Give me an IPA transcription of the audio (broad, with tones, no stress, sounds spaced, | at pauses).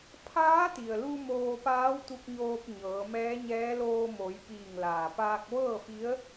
pʰ aː˧˥ t̪ i˩ ə̯ l u˧ m oː˧ p aː˧˥ w t̪ u˧ k̚ ɲ oː˧ p̚ ɲ ɤː˩˧ m ɛː˧˥ ɲ ɛː˧˥ l oː˧ m o˩˧ j p iː˧˩ ŋ l aː˩ p aː˧ k̚ ʋ ɤː˥˨ f i˧˥ ə̯